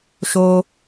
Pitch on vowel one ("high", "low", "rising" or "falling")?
high